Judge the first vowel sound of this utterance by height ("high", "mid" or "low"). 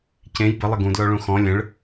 mid